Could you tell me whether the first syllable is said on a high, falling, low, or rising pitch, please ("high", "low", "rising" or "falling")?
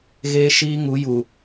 high